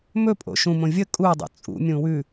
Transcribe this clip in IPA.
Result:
m ɵ pʼ o̰ ʃ ũ m õ vʲ ə kʼ u dˤ o̰ t͡sʼ ṵ mʲ ũ w ʉ

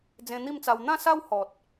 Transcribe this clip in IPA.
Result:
d͡z ẽ˧ n̪ i˥˧ m t͡s a˧ w n̪ ã˥˧ s a˦ w h ɔ˨ t̚

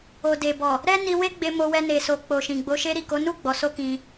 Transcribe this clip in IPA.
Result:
o˨ d e˨ b ɔ˨ | ɾ ɛ˦ n i˧ w e˦ ɡ͡b e˧ m o˧ w ɛ˧ n e˨ s o˨ k͡p o˨ ʃ ĩ˨ ɡ͡b o˨˦ ʃ e˧ ɾ i˨ k o˨˦ n u˦˨ ɡ͡b ɔ˨˦ s o˦ k ĩ˧

